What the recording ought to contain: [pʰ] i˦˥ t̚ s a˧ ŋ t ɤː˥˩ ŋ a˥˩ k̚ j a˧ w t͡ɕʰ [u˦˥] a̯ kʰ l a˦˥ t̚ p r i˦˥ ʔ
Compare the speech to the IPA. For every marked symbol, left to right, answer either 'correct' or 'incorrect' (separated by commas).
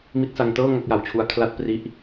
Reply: incorrect, correct